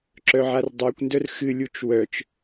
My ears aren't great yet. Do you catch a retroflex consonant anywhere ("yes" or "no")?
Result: no